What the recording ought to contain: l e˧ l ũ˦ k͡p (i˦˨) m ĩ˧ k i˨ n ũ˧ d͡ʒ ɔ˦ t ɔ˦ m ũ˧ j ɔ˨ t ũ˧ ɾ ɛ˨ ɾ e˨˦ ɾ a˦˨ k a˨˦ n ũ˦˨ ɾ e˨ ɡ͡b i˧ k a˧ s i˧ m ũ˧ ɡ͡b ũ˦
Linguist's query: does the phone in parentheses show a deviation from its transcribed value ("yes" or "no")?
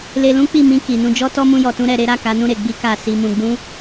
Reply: no